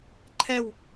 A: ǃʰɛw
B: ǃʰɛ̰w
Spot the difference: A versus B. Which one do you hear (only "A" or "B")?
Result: A